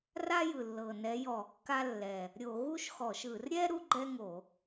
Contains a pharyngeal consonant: no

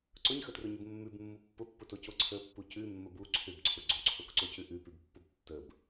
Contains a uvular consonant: no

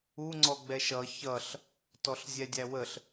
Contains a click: yes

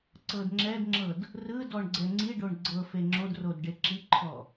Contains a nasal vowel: no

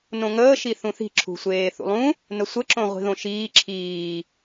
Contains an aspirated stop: yes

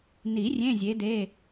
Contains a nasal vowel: yes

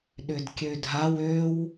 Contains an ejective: no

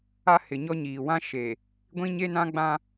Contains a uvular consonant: no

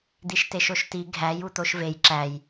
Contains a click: yes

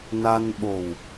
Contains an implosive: yes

